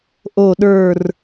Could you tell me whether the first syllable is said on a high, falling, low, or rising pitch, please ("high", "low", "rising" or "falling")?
low